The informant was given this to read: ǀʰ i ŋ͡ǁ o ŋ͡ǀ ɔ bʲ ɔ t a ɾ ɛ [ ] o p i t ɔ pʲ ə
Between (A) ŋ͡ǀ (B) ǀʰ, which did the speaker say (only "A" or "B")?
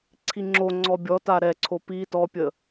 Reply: B